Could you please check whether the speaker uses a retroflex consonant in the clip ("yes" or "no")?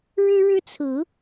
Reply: yes